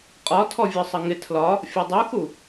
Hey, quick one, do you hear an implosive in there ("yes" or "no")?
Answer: no